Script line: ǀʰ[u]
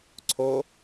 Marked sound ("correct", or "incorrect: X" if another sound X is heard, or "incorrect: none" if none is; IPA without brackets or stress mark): incorrect: o